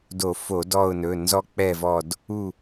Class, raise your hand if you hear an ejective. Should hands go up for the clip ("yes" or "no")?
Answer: no